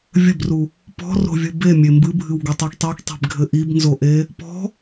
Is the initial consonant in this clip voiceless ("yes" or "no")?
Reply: no